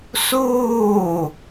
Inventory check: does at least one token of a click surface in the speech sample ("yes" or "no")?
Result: no